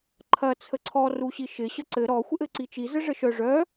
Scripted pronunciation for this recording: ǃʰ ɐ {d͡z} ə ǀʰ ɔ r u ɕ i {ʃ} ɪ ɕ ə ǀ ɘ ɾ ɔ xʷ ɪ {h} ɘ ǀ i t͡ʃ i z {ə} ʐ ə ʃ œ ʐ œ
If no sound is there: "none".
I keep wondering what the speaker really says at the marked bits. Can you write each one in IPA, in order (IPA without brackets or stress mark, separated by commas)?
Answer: t͡sʰ, ʃ, ʔ, ə